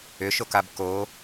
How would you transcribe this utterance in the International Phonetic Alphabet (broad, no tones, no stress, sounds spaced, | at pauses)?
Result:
ʏ ʃ o k a b k o